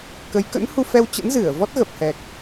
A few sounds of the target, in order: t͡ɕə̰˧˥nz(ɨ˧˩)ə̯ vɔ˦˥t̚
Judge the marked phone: correct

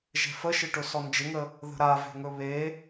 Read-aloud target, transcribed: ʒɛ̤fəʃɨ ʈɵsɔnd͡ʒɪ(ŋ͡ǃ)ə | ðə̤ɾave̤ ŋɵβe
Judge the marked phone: incorrect: ŋ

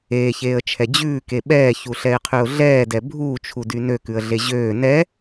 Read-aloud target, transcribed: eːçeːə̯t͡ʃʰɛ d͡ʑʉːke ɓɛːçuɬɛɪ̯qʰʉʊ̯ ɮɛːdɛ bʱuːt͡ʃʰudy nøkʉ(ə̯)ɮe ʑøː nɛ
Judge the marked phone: correct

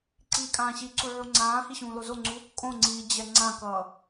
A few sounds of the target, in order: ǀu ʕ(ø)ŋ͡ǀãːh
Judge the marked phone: incorrect: u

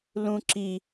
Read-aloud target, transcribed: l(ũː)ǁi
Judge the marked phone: incorrect: ũ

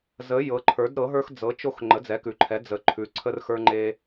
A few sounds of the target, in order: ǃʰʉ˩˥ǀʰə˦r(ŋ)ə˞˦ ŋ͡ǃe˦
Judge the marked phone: incorrect: x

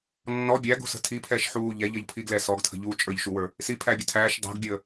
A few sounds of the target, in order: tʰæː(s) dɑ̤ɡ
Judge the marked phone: incorrect: ʃ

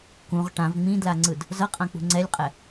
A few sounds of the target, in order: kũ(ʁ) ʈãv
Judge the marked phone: correct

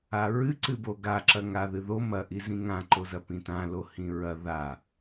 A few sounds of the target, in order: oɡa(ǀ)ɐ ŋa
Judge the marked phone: incorrect: ǁ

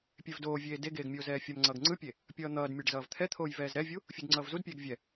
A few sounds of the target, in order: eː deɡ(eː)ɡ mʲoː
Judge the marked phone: correct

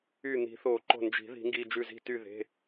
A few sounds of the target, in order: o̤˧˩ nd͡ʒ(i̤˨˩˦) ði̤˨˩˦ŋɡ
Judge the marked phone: correct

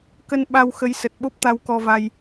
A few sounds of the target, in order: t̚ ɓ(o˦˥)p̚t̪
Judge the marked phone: correct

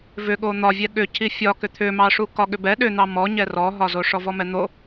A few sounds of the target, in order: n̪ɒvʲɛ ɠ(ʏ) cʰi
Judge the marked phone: correct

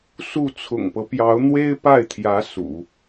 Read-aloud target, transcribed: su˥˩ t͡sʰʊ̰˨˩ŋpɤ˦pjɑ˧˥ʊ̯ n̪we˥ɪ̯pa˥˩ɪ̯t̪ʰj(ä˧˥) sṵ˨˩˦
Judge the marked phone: correct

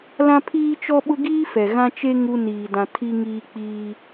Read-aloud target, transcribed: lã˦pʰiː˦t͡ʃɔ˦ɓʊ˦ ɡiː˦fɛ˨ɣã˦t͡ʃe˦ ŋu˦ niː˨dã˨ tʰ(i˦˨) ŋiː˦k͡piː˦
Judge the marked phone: incorrect: i˦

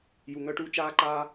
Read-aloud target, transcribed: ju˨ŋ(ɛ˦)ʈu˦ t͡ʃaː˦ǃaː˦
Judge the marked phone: incorrect: œ˦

